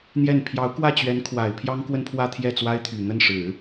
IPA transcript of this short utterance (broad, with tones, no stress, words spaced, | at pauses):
n̪jɛ˥˩n pʰjɑ˧˥ʊ̯kwä˥˩t͡ɕɥɛ˧˥nkʰwa˨˩ɪ̯ pʰjɑ˥ŋkwə˥˧npʰwä˥˧ t̪ʰjɛ˥˩t͡swa˥ɪ̯t̪ʰy˨˩ n̪ə˥˩nʂɻ̩˨˩˦